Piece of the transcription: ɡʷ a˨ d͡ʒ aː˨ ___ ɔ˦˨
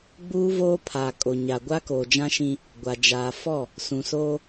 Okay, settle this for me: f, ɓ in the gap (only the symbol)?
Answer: f